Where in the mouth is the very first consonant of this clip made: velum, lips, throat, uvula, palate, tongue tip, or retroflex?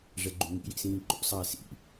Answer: retroflex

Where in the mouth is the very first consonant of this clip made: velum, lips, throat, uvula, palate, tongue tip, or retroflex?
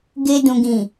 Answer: velum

